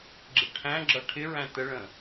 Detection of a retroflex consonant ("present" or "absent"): present